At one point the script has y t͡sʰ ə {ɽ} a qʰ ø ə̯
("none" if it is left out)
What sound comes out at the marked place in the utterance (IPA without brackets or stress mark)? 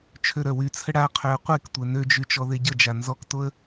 ɽ